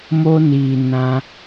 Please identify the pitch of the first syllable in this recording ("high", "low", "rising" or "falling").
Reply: high